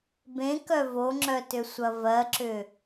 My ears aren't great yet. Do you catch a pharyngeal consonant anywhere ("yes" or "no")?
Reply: no